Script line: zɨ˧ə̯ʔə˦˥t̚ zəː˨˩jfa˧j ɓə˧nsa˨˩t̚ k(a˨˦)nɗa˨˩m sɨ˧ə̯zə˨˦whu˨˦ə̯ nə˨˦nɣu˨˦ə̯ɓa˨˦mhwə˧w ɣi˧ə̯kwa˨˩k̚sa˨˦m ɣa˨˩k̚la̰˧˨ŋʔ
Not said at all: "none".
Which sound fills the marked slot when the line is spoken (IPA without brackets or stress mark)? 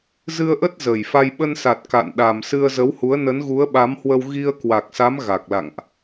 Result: a̰˧˨